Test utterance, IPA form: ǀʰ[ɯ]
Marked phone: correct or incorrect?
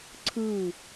correct